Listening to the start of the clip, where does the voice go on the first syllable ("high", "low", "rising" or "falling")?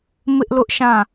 high